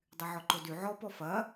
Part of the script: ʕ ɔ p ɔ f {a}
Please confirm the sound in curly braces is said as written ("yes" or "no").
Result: no